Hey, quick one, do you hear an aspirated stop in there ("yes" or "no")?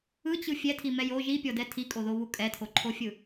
yes